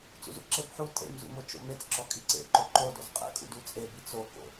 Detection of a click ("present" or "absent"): present